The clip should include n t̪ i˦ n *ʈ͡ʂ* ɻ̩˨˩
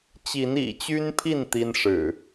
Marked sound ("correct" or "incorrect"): incorrect